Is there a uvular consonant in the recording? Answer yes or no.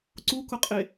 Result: yes